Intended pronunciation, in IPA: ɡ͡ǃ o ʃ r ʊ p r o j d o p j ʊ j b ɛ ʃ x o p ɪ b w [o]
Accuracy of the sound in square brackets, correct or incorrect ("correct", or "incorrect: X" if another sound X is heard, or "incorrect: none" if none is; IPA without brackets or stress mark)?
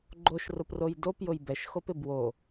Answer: correct